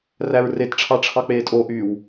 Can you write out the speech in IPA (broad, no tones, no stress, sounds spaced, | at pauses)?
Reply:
r æ ɹ r e t ʈ͡ʂʰ ɑ ʈ͡ʂʰ ɑ k͡p eː tʼ o ʔ yː w